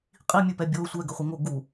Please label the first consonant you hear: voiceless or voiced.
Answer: voiceless